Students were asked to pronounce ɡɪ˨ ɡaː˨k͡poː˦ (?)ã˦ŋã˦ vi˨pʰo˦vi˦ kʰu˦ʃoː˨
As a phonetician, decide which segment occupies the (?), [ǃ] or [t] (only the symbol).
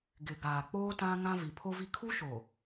t